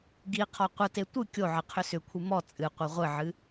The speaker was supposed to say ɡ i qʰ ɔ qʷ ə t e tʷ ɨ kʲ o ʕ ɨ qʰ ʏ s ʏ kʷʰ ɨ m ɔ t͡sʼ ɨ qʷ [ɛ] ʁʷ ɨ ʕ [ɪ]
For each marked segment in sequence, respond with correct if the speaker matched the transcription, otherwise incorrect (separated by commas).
correct, incorrect